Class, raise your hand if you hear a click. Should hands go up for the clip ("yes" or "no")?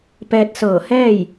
no